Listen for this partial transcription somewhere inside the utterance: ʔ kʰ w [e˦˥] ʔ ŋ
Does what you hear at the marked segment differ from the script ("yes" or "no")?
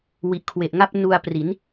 yes